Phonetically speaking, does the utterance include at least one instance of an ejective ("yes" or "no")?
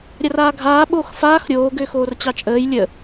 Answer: yes